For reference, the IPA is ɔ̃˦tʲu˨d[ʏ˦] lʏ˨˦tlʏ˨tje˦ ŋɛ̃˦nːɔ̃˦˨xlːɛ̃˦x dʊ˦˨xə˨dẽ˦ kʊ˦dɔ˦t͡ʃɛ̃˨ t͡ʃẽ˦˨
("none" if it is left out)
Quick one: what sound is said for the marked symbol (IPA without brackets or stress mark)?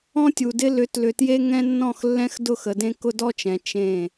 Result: ɪ˦